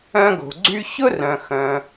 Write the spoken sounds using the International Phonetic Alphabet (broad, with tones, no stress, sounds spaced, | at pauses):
œ̃˧ ɡ o̤˩ ɡ͡ǀ y˧ ç ʊ˥ r œ̃˩ x œ̃˩